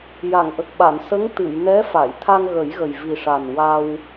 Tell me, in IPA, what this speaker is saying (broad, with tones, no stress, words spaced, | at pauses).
ja˨˩˨ŋʔə˨˩k̚ɓa˨˩˨n sə˧˥ŋ t̪ɨ˨˩˨jnɛ˧˥ fa˨˩˨jt̪ʰa˧ŋɣə˨˩˦j ɣə˨˩jvi˨˩ʂa˨˩n wa˧w